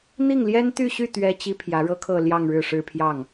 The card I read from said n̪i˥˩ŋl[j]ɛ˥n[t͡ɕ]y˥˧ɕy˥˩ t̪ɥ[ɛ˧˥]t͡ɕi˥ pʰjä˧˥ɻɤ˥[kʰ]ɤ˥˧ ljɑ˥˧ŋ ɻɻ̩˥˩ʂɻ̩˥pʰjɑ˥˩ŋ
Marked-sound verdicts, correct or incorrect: correct, incorrect: t̪, incorrect: ɛ˥, correct

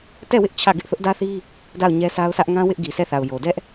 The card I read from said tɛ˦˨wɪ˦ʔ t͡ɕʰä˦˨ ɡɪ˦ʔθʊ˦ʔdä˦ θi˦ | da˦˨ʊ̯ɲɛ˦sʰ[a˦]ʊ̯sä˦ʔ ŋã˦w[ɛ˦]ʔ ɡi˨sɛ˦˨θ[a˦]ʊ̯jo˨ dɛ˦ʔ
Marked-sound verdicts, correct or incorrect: correct, incorrect: ɪ˦, incorrect: a˨

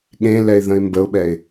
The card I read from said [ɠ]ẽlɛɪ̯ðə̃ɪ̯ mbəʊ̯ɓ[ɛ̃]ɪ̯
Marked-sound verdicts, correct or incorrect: correct, incorrect: ɛ

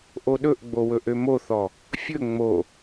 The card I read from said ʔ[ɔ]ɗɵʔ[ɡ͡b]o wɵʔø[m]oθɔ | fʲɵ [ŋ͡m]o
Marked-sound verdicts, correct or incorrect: incorrect: o, correct, correct, correct

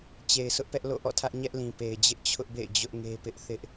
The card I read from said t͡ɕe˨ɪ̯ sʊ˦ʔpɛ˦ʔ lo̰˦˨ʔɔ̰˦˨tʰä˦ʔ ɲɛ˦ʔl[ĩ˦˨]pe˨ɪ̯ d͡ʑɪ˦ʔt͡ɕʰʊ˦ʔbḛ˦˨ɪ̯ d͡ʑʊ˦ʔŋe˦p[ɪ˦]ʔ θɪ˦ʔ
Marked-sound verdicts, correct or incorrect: incorrect: ĩ˨, correct

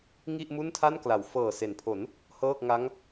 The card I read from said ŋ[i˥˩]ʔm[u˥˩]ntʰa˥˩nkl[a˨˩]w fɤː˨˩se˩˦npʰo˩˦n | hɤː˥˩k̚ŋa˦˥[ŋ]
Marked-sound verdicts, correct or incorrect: correct, correct, incorrect: a˩˦, correct

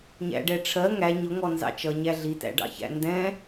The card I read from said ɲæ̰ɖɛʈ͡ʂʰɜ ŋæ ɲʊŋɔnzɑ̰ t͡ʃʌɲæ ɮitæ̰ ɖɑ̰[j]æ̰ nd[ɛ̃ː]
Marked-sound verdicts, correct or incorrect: incorrect: ç, incorrect: ɛ̃

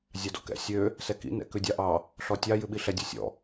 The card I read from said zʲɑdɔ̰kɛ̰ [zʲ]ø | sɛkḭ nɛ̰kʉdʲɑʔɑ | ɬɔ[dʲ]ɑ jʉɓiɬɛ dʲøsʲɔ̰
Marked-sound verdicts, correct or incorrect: incorrect: sʲ, incorrect: tʲ

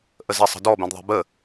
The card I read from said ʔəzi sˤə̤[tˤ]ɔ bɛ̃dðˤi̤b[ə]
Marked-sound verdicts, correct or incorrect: incorrect: d, correct

